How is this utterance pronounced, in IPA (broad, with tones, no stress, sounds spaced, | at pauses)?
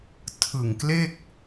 tʰ ɯ˨˩ ŋ k l e˥˩ k̚